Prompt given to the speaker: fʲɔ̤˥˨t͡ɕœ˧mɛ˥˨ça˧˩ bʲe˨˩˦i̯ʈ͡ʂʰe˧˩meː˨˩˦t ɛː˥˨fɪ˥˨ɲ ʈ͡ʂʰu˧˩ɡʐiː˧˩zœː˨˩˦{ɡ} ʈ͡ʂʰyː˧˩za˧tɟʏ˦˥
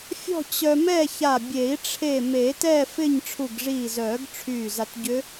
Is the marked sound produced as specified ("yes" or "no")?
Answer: yes